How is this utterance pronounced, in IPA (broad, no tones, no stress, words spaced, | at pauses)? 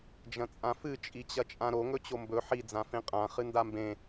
d͡ʒɐ̃t͡sʼãfɨ t͡ʃʼit͡ɕɐt͡ʃʼãɾo ŋɵt͡ɕombɵ ħi d͡zãfẽqʼã χɨndambẽ